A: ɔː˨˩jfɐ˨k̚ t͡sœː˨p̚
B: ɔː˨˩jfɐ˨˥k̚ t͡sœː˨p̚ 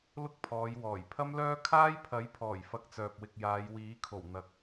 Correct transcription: A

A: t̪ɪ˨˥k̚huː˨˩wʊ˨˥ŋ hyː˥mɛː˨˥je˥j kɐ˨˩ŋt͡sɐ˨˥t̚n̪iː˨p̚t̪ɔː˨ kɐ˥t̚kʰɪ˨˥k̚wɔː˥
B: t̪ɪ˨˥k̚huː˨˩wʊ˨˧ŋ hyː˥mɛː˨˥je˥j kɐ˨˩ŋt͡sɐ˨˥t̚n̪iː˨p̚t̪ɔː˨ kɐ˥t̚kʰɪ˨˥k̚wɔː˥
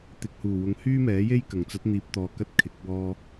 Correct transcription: B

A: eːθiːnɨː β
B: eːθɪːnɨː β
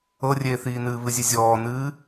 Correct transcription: A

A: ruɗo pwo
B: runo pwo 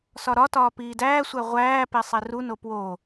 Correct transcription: B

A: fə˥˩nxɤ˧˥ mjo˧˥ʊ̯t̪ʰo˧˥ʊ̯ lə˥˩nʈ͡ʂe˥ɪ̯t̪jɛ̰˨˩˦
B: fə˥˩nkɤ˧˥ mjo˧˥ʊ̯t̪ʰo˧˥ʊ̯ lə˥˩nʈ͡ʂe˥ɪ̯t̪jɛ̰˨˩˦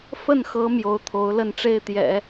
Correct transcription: A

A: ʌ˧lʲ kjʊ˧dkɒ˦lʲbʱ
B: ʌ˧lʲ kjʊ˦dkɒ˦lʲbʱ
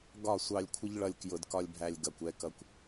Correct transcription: A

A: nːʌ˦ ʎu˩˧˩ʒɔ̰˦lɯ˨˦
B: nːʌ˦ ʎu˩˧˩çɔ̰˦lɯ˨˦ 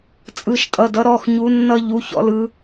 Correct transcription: B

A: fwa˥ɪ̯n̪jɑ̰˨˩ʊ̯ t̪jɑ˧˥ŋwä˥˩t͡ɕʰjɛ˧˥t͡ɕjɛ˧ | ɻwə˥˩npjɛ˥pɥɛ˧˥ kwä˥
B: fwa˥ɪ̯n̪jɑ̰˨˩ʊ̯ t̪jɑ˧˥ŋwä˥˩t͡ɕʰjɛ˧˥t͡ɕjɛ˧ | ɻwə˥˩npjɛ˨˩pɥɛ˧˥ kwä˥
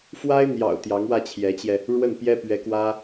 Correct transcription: A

